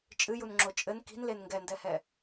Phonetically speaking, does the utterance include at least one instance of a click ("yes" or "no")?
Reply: yes